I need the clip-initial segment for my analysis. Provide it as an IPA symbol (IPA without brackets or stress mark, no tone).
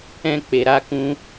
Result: ɛ̃